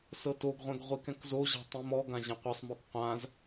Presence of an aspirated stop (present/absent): absent